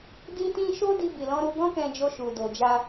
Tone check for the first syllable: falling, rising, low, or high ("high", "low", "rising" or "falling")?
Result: high